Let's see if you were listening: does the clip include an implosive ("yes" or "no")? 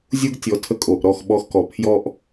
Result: yes